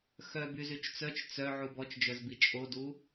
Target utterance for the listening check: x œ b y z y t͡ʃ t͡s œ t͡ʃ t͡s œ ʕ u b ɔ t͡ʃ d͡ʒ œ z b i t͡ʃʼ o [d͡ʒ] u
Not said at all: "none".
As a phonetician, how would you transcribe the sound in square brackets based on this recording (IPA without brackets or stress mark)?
d